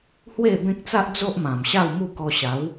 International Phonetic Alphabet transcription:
h w e˥˧ b ẽ˦ k̚ t͡s a˦ ʔ d͡z o˦ ʔ m ã˨˩ m ɕ a˥˧ w m u˥˧ k ɔ˧ ɕ a˨˦ w

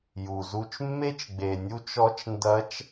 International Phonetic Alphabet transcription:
j u˩ z u˧ t͡ʃ mː e˥ t͡ʃ ɡ͡b e˩ nʲ u˧˥ t͡ʃ ɔ˧˥ t͡ʃ n d ɐ˧˥ t͡ʃ

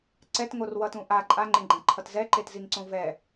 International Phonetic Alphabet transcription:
ǀ ɛ t ŋ o r w ʌ t ũ ʔ a ǃʼ a ŋ͡ǃ ẽ ɡ͡ǃ ã ǃʰ ʌ t z ɛ ǃ e t z i ŋ ǀ õ v ɛ

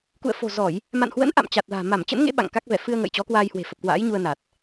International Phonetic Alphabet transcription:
k ṵ˧˨ ə̯ f o̤˨˩ z ɔ˧˩˨ j | m a̰˧˨ n h w ə̰˧˥ n ʔ a̰˧˨ m t͡ɕ a˨˩ t̚ l a̤ː˨˩ m a˧˩ m t͡ɕ ə̰˧˥ n ŋ ḛ˧˥ ɓ a̰˧˨ ŋ k a˦˥ k̚ v ɛ˧˩ f ɨ˧ ə̯ ŋ ə̰ː˧˨ j t͡ɕ ɔ˨˦ k w aː˧ j h w e̤˨˩ f ə˨˩ p̚ k w a̰ː˧˥ j ɲ u˧ ə̯ n a˨˩ t̚

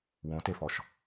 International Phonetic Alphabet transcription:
w õ t e f ɔ ʃ

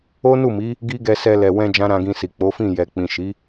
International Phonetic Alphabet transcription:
o˦ n u˦˨ m i˨˦ | ɡ i˦ ɡ ɛ˧ s ɛ˧ l ɛ˨ w ɛ̃˧ d͡ʒ ã˦ ɾ ã˧ ɡ ĩ˧ s i˨ k͡p o˨˦ f ĩ˦˨ j ɛ˨ k͡p ĩ˨ ʃ i˨˦

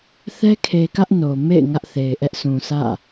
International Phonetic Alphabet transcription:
θ ɛ˦ kʰ e˨ k ä˦ ʔ n o˨ m ḛ˦˨ ɪ̯ ŋ ä˦ ʔ θ e˨ ɪ̯ ʔ ɛ˦ ʔ s ũ˨ s ä̰˦˨

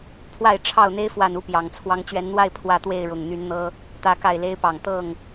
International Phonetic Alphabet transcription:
pʰ w a˥˨ ɪ̯ ʈ͡ʂʰ ɑ˥˨ ʊ̯ n̪ e˦ ɪ̯ f w a˥˨ n u˦ p j ɑ˨˩ ŋ t͡sʰ w ɑ˦ ŋ t͡ɕ ɥ ɛ˨˦ n n̪ w a˥˨ ɪ̯ pʰ w ä˥˨ t̪ w e˥˨ ɪ̯ ɻ ʊ˨˩ ŋ n̪ y˨˦ n n̪ ɤ˦ | t̪ ä˦ k a˥˨ ɪ̯ l e˦ ɪ̯ p ɑ˨˩ ŋ t̪ ɤ˥˨ ŋ

